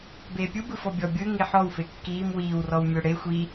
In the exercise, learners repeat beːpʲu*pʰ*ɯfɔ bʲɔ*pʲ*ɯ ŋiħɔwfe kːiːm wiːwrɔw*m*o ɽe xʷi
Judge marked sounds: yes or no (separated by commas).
no, no, no